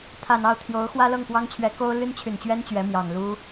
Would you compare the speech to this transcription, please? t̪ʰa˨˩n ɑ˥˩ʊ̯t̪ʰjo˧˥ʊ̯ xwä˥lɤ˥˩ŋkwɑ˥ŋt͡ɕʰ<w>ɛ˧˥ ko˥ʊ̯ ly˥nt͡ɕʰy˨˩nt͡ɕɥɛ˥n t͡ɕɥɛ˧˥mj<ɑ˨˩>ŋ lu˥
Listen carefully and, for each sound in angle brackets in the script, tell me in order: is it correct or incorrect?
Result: incorrect, correct

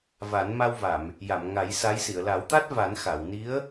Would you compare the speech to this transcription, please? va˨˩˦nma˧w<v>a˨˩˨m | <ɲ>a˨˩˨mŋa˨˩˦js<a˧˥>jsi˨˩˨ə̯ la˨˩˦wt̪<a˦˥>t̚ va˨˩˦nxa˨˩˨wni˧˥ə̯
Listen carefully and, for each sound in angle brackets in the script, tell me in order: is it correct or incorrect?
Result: correct, incorrect, correct, correct

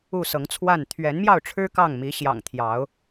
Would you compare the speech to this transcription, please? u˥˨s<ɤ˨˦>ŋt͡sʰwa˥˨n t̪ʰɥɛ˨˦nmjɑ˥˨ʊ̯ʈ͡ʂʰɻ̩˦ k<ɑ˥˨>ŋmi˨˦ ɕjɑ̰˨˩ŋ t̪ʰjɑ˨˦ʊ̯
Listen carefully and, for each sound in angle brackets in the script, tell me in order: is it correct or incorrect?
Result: correct, correct

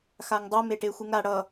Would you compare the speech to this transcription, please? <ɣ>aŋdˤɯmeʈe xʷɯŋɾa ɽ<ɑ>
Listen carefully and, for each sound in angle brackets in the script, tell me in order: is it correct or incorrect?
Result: incorrect, incorrect

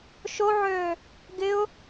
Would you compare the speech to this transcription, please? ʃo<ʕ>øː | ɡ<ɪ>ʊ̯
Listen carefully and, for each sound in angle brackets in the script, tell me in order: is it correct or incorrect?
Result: correct, correct

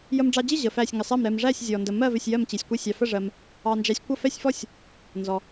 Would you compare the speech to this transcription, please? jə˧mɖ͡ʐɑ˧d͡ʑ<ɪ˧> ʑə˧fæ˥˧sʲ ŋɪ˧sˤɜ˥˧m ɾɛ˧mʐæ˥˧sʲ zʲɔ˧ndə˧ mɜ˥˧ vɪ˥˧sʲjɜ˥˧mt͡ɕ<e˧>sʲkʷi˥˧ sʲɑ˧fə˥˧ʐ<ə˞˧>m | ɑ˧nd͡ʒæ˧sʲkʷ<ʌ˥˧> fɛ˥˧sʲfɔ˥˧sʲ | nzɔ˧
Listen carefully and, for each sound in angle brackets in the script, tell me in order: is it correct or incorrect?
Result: incorrect, incorrect, incorrect, correct

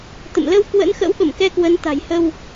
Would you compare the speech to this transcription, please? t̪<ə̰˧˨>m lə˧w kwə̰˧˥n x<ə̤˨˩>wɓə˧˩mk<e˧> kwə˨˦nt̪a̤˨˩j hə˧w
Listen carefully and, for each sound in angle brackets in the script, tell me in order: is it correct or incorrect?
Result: correct, incorrect, incorrect

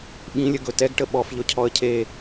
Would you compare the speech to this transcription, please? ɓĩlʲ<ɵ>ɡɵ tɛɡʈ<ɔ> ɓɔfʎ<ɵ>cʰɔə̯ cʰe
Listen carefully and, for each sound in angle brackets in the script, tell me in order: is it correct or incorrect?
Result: incorrect, incorrect, correct

